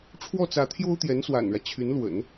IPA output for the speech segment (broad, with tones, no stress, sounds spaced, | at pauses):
ʈ͡ʂʰ w ɔ˥˩ t͡s ä˧˥ t̪ʰ j o˥ ʊ̯ t̪ j ɛ˧˥ n s w a̰˨˩ n ɻ ä˦ t͡ɕʰ y˧˥ n l w ə̰˨˩˦ n